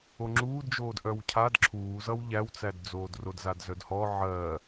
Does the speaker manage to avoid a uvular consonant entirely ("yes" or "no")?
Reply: yes